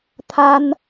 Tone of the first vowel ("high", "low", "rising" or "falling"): high